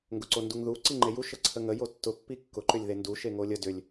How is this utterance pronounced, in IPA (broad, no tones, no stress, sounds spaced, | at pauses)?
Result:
ŋ ɡ ʊ ǀ o n d u ŋ ð u ǀ i ŋ͡ǃ e j u ʃ ə ǀʰ ə ŋ ə j o tː ʊ pː i kː ʊ ǃ ʏ lʲ ð e n d u ʃ e ŋ o lʲ ə d ʏ lʲ